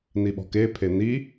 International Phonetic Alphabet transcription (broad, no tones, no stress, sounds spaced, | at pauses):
n i ɓ ɔ̤ k e pʰ e n i